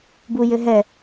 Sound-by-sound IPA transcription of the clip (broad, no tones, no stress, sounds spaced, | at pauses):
b u j ɘ ɦ ɛ